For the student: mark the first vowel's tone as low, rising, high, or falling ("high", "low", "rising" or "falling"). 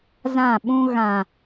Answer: falling